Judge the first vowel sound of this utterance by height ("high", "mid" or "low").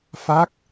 low